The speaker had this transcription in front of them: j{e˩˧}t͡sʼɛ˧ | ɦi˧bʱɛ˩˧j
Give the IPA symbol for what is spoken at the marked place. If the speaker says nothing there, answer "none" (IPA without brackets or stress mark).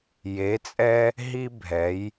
e˩˧